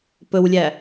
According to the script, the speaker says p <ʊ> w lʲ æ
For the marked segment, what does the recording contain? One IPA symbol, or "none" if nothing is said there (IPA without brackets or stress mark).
ɵ